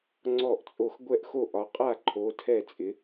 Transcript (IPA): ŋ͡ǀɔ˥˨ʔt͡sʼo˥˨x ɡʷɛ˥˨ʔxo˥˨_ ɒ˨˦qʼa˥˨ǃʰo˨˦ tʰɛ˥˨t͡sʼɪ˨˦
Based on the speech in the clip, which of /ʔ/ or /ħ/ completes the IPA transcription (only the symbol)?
ʔ